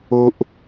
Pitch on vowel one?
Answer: high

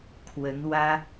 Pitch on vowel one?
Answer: rising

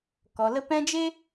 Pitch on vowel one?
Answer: low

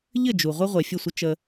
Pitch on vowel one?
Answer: falling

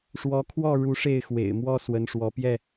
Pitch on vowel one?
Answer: rising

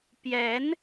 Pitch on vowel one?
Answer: rising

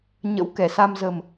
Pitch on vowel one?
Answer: rising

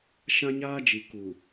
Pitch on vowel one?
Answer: high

